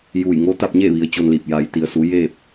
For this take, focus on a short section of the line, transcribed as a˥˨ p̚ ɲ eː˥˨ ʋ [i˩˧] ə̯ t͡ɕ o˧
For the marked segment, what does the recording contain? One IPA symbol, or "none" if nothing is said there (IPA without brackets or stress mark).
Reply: i˩˧